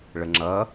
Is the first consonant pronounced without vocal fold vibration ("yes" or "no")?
no